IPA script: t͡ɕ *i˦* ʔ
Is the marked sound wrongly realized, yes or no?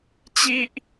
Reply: no